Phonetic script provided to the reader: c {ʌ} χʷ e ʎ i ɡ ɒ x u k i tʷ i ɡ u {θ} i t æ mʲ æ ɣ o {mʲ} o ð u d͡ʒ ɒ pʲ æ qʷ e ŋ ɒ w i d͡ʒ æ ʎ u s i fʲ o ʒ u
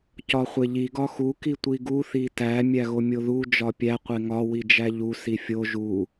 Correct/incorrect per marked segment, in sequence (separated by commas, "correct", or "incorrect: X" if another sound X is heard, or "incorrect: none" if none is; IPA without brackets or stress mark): incorrect: ɒ, correct, correct